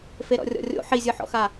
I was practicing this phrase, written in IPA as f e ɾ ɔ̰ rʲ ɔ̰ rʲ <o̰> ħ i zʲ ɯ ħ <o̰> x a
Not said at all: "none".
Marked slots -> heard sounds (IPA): o̰, ɔ̰

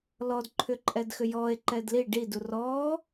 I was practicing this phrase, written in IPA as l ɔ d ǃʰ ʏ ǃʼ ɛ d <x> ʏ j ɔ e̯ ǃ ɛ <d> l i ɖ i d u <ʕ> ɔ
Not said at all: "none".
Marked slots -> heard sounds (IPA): x, d, r

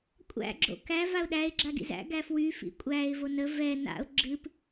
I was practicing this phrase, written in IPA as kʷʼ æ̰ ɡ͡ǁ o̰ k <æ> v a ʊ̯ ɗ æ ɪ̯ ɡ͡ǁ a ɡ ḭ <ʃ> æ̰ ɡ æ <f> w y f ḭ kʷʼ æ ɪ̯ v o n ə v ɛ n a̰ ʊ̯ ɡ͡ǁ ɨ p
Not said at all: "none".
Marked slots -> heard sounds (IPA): æ, z, f

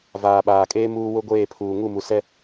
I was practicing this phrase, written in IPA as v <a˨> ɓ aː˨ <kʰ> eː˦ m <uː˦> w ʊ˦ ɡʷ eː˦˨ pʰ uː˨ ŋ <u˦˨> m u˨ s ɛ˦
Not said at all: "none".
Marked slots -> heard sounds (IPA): aː˨, kʼ, uː˦, u˦˨

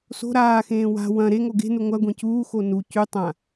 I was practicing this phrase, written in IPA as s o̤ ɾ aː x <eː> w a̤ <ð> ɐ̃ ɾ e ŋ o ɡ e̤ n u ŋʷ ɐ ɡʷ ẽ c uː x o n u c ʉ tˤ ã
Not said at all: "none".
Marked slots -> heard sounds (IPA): ẽː, w

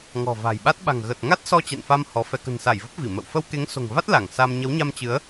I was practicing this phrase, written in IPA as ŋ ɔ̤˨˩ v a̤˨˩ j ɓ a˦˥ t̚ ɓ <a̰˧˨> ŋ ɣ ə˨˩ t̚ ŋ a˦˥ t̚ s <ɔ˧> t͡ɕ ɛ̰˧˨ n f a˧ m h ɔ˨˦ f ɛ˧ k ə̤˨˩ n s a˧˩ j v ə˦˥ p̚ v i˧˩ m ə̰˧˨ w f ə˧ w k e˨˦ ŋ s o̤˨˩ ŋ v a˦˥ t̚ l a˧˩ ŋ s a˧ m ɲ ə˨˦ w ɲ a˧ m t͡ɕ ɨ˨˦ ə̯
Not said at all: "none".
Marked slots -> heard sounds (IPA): a̤˨˩, ɔ˧

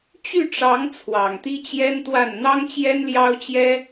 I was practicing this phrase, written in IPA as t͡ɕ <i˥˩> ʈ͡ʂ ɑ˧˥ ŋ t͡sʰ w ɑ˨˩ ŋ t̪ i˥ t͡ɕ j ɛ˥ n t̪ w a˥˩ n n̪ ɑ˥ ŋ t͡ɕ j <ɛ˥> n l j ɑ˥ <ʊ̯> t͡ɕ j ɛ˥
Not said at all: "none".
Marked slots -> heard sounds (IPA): y˥˩, ɛ˥, ʊ̯

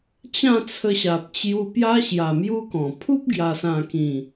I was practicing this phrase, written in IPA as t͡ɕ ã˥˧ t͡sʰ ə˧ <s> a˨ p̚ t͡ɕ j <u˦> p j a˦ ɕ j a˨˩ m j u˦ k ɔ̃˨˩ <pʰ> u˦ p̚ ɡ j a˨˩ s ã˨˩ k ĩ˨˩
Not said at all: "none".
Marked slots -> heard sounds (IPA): ɕ, u˧, pʰ

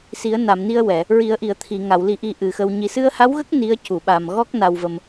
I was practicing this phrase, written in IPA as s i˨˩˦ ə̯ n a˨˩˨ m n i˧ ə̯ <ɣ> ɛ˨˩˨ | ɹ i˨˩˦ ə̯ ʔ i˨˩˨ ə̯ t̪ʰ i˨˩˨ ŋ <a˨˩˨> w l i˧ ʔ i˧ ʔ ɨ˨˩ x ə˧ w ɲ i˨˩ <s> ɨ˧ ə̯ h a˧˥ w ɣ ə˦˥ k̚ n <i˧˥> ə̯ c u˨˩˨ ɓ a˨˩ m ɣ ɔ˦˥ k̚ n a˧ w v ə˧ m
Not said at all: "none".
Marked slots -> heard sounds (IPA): w, a˨˩˨, s, i˧˥

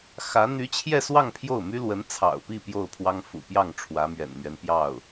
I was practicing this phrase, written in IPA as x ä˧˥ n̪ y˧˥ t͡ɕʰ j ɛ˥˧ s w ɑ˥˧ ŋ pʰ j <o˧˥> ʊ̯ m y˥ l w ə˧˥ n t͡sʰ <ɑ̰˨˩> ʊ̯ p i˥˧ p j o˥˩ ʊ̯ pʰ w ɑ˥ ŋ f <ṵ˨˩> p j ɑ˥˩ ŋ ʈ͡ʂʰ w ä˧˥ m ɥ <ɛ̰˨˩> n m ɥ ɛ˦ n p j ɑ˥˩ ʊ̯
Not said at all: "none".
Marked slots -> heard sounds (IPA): o˥˩, ɑ̰˨˩, ṵ˨˩, ɛ̰˨˩

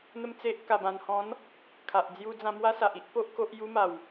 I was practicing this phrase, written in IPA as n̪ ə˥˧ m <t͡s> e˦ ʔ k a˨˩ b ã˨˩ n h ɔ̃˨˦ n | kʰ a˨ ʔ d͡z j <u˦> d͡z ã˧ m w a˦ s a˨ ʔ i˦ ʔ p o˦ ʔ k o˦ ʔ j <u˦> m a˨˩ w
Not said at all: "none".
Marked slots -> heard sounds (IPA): t͡s, u˦, u˦

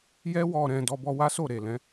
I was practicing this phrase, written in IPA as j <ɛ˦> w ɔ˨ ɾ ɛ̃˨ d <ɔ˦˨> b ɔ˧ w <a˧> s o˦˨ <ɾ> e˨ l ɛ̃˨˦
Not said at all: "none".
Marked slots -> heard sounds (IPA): ɛ˧, ɔ˧, a˦, ɾ

